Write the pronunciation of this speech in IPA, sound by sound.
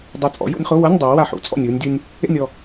dˤ ɛ˧˩ t͡sʼ ɔ̰˩˥ j ṵ˧ nʲ χ o˧˥˧ w ɤ˧˥˧ nʲ dˤ ɯː˩˥ w a˧˩ ħ ṵ˩˧ t͡sʼ ɔ̰˧˩ nʲ ɯː˧ nʲ dʲ ɯ˧ nʲ | ḛ˥˨ nʲ ɔ˥˨

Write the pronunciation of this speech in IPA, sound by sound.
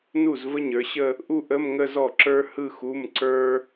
n u˥˩ z v ə˥ ɲ ə˞˩˧ ɕ ə˥˧ | ʔ u˥˧ ʔ ə˧˥˧ m ŋ ə˥˧ z ɔ˥˩ ǁ ə˞˥ h ɯ˥˧ x u˧˥˧ m ǀ ə˞˥

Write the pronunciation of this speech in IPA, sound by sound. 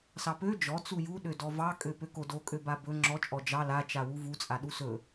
s ɑ p ø d͡ʒ ɔ t͡s u j u ɗ ø d ɔ v ɑ kʼ ø p ø k o d o kʼ ø b a b ɵ ŋ͡ǁ ɔ t͡ʃʼ ɔ d͡ʒ ɑ l a t͡ʃ a w u v u t͡sʼ a ɗ u s ɵ

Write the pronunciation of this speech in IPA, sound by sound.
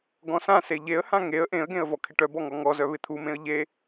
ɡ ɔ̃ s ã s e ʎ e ə̯ h ã ŋ e ə̯ ʔ ẽ ə̯ ɡ ẽ ə̯ v ɔ kʰ ɪ ʈ œ b ɔ ŋ ɔ ŋ ɔ z œ β ɪ t̪ʰ u m ẽ ə̯ ʎ e

